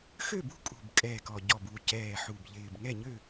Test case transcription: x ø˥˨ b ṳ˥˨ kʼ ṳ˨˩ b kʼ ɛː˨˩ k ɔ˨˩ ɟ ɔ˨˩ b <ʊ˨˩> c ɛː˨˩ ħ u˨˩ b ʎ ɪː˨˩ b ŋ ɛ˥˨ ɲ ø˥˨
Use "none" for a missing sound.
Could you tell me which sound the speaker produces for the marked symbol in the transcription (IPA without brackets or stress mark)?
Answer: u˨˩